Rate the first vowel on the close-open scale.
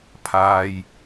open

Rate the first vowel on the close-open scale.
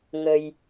mid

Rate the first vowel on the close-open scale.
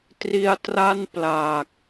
close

